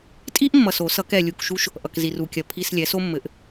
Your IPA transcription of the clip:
tʼ i˥ ʔ mː ʌ˨ s o˨˩˦ s ʌ˨˩˦ k ɛ˨ lʲ u˨ k ʃ u˥ ʃ | ʔ ʌ˨ k z i˨ r u˨ kʲ ɐ˨˥ pʰ i˧˥˧ s lʲ ɛ˨˥ s o˥ mː ɘ˨˥ ʔ

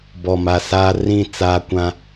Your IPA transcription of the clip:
b ɔ˨ m a˨ s aː˦ r ĩ˦˨ t͡s aː˦ kʷ ã˦

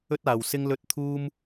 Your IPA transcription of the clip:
ɵ˥ t̚ aː˨ w s ɪ˥ ŋ l ɵ˥ t̚ t̪ʰ uː˥ m

